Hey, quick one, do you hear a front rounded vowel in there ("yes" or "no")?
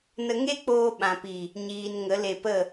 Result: no